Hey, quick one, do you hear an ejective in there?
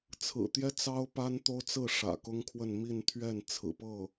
no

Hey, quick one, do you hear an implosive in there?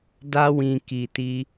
no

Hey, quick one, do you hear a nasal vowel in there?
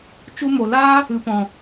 yes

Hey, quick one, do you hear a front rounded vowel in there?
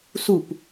no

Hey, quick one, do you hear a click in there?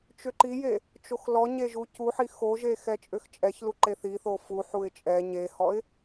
yes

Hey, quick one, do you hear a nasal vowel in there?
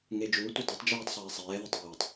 no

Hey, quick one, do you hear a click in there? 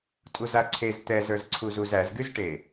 yes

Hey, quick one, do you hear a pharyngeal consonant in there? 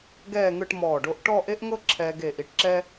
no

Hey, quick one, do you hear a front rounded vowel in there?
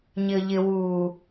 no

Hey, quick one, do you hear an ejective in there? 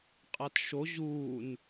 yes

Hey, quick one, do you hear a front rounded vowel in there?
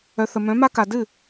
yes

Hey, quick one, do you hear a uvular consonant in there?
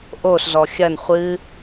yes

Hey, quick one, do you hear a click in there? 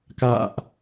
no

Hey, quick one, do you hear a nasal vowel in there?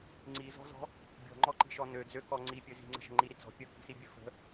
no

